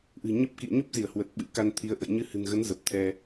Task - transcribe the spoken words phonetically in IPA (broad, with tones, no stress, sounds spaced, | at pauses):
ʔ ɨ̤˨˩ ɲ ə˦˥ p̚ k ḭ˧˨ ə̯ ɲ o˦˥ p̚ z i˧˩ ə̯ h w ə˨˩ t̚ ɓ ɨ̰˧˥ k a˧ n t̪ʰ i˨˦ ə̯ ʔ ə̰˧˨ j ɲ ɨ˧ h ɨ̤˨˩ n ɣ ə˨˦ n z ə˨˩ p̚ t̪ʰ ɛ˧